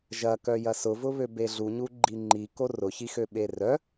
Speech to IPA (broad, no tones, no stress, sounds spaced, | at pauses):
ʒ ɐ k œ j ɐ s ʊ v ʊ β ø b e ɮ u ɲ u ɡ͡ǃ i ŋ͡ǃ i k o r ʊ ç i x ø ɓ e r œ